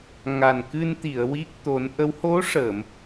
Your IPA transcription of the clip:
ŋa˨˩nkɨ˧n t̪i˨˩˨ə̯wi˦˥k̚ t̪o˨˩˦nʔə˧˥w ho˧˥ʂə˨˩˨m

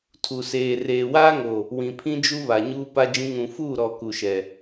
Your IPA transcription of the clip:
tʰu˨seː˨ reː˨waː˦ŋo˨ | wĩ˨pʰĩ˦d͡ʒu˦βa˨ ɲuː˦ pa˦d͡ʒĩ˦ ŋũ˨fuː˦˨ɾɔ˨ ku˨ʃɛ˨

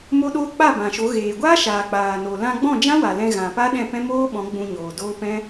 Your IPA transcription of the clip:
mo˦ɗoː˦ k͡pa˦˨bã˨ʃo˨˦ ɣeː˨ɡʷaː˦ʃaː˨ k͡paː˨no˨ lã˧ɡ͡bɔ̃˦˨ d͡ʒã˦wa˨ lɛ̃˧ɣã˨pa˦ ɗɛ̃˦˨pɛ̃˦moː˦ɓɔ̃˨˦ ɡ͡bũ˧ ɲoː˨doː˦pɛ̃˦

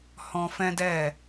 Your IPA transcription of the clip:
hɔ̃˧fɛ̃˦dɛ˦˨

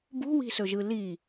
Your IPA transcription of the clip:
bṳwi̤sɵʒɯ li

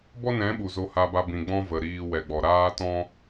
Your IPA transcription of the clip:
bɔ˦nɛ̃˨˦ ɓu˨zo˧ha˧ba˧ bĩ˨ɡ͡bɔ̃˦ və˨ɾiː˧wɛ˨ɡ͡bɔ˨ ɾaː˦tɔ̃˦

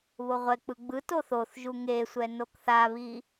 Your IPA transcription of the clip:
βoʁʷɛk͡pɯ ɡ͡bɯ toθoθʒu ŋesʷɛ nokθaβi

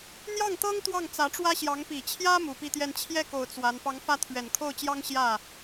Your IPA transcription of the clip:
n̪jɑ˥˩ŋt̪ɤ˥ŋ t̪wɑ˥˩ŋt͡sä˧˥ʈ͡ʂwä˥ɕjɑ˧˥ŋ pi˨˩t͡ɕʰjä˥ mu˨˩pi˥˧t̪jɛ˥˧n t͡ɕʰjɛ˥˩ko˨˩ʊ̯ t͡swa˧˥n pɑ˧˥ŋfä˥˩ t̪ʰɥɛ˨˩nkʰo˥˩ʊ̯t͡ɕjɑ˥ŋ ɕjä˥˩

